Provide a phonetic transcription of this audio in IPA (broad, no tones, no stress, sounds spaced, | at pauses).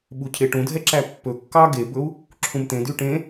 ɓ u cʰ e ʈ ũ dʱ ɛ ǁ æ pː ɵ kː ɑ ɡ e b ɵ u̯ | ǁʰ ũ m t̪ ẽ d y ʈ ẽ